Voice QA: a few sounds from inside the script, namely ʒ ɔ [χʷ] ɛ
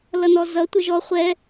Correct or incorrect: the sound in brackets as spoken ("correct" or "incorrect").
correct